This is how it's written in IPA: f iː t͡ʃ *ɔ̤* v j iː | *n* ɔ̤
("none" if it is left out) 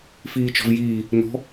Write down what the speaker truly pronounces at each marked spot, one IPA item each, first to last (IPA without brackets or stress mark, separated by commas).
ɔ̤, n